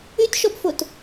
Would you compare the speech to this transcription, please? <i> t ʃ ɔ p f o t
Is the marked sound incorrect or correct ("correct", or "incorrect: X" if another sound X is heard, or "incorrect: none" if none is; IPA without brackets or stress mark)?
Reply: incorrect: y